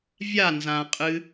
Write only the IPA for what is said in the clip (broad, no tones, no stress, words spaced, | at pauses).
vʲa nzã qʼɨ